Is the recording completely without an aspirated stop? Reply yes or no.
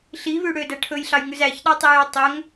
no